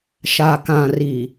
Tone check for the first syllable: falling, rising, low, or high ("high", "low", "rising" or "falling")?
low